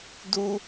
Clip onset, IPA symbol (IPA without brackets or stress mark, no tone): d